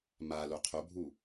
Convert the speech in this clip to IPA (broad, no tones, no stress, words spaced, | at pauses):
ma loqʰobʱu